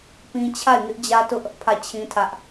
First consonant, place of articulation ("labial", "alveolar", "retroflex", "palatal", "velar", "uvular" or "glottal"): labial